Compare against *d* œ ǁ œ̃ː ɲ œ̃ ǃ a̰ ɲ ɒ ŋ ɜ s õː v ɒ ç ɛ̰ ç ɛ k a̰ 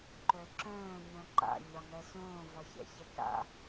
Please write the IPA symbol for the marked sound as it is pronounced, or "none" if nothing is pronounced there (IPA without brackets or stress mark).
ǃ